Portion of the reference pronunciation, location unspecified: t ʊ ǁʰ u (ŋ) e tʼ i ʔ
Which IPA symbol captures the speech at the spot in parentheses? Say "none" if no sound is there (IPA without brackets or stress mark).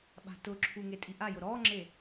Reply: ŋ